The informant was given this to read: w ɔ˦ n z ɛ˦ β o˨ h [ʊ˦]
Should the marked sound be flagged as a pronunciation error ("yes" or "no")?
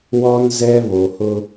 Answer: no